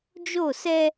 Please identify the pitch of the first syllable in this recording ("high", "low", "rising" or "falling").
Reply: falling